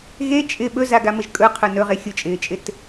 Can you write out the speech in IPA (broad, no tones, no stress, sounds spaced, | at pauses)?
ɣ e t͡ʃʼ ɪ ɓ ɵ z a ɡ a m ə ʒ kʼ ɵ qʰ ɵ n ɵ ʁ e xʲ ʊ t͡ʃʼ ɪː t͡ʃʼ ɪ t